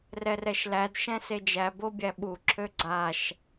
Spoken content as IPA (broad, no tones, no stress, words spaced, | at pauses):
rɛrɛʃlæd ʃɛ̃sed͡ʒæ bobʲæɓu ǁʰøɡ͡ǀaʃ